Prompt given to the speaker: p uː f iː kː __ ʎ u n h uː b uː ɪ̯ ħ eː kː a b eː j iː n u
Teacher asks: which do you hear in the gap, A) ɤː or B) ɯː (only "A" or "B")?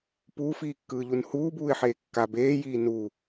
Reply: B